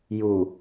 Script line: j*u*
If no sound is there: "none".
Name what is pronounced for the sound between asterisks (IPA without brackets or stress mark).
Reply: u